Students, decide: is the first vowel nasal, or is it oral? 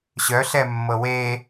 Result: oral